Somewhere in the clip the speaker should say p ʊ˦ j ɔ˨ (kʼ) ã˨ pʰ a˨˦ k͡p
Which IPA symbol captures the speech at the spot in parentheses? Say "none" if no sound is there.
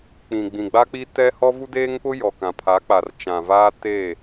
k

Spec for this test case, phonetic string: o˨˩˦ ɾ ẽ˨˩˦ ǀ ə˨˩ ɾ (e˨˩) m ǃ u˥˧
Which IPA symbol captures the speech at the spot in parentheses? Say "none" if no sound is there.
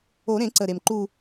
e˨˩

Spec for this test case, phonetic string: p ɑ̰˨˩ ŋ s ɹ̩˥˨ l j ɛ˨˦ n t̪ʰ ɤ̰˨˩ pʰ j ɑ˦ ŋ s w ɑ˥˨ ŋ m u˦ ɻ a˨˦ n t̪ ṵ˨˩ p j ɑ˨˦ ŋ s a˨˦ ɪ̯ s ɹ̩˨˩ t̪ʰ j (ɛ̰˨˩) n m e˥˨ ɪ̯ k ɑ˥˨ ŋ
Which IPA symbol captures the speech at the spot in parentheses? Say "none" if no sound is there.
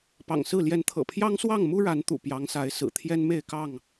ɛ˦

